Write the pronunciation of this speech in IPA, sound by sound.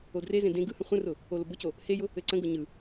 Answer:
o d r e z ẽ d ẽ ɡ ɯ h ə̃ χʷ ə̃ r ʊ | o l ʊ b ʊ c o | h e j ʊ | ɘ ǀ ə̃ ɡ ʊ ɲ ɯ

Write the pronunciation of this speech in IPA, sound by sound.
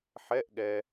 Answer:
ħ ɛ˧˥˧ ʔ ɠ ɛ˨

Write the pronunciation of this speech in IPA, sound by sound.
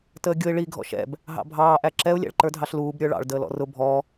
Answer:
t əː ɡʲ ʊ ɪ̯ ɭ i ɡʱ ɔ̰ ʃ ɛ̰ b | ɦ ɑ̰ bʱ ɑː ʔ æ ǁ ɛ ʊ̯ lʲ æ̰ ɭ ǃ ə˞ dʱ ɑ ɬ l uː b ɾʲ ə˞ ɭ ɑ̰ ɭ d əː l ɔ̰ r ʊ bʱ ɔ

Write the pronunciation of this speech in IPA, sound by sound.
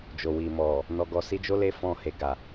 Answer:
d͡ʒ o˨ w i˨ m ɔ˨ | n ɔ˨ ɡ ɔ˨ s i˧ d͡ʒ o˦ l e˦ f ɔ̃˧ h e˨ ɡ a˨

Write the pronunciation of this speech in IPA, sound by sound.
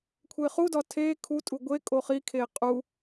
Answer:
kʷʰ e χ u d ɒ tʰ e kʰ u tʼ u ɡʷ e kʼ o χ i kʰ e qʼ u

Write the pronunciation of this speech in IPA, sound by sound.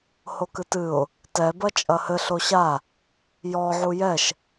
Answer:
h o k ɨ t ɨ ʊ̯ | t ɛ b ɐ t͡ʃʼ ɐ h ɘ ɬ o ɕ a | j ɔ ʕ u j ɛ ʃ

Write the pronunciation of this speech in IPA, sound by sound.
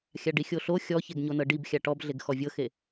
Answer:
xʲ a ɖ i xʲ o ɬ o xʲ ɔ ç e ɡ ɲ o n ɤ ɖ i b xʲ a ʈ ɔ b ɮ e ɡ x ɔ vʲ ɤ x e

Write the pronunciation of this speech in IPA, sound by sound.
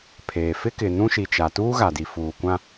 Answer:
pʰ eː˨ f ɪ˦ k ɪ˨ n ũ˦ ʃ i˨ t͡ʃ a˨ t uː˦ ɣ a˨ d i˨ f uː˨ kʷ ã˦

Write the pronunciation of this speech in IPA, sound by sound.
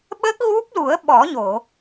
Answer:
ɓ ə˦˥ k̚ ɣ u˦˥ p̚ l u˨˩˦ ə̯ ɓ ɔ˨˩˦ ɲ o˨˩˨

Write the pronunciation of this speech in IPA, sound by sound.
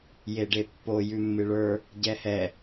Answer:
j e ɖ e pː o j ʉ mː ɨ ɭ ə˞ | ɟ ɛ h ɛ

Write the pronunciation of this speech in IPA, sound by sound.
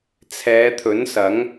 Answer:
t͡sʰ ɛː˨˧ t̪ʰ ɵ˨˥ n s ɐ˨˥ ŋ

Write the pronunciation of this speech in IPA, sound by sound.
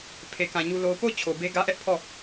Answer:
pʰ e˨ k ã˨ ɲ u˦ l o˦ ʊ̯ p o˦˨ ʊ̯ t͡ɕʰ o˨ b e˦ ɡ ä˦ ʔ ɛ˦ ʔ pʰ ɔ˦˨

